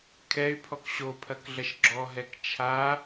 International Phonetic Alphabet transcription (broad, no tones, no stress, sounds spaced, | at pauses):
kʰ ɛ y̯ pʰ ɔ k ɕ o pʰ ɐ k ɮ ɐ ʃ ɡ͡ǁ ɔ ɦ ɛ k t͡ʃʰ a